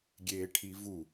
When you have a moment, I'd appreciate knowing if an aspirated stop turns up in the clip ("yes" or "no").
yes